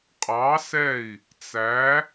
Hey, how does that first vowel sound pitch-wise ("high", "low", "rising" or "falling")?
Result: rising